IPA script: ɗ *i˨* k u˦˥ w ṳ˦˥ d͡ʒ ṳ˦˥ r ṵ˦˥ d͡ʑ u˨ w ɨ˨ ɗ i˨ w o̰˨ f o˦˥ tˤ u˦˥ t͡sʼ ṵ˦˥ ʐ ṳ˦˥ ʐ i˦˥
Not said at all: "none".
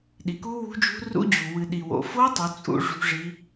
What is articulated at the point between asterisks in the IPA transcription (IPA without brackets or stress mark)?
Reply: i˨